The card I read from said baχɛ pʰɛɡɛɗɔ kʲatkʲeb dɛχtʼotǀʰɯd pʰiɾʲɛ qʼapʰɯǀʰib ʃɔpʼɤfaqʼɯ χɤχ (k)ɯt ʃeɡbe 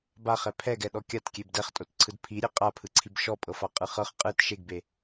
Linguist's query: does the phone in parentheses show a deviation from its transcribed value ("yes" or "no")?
yes